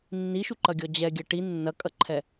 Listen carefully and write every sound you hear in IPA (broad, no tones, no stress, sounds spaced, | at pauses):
nː i ʃ u ǃ ɐ ɡʲ ɔ d͡ʑ ɛ ɡʲ ɐ ʈ i nː ɐ kʼ ɐ ǃʰ ɛ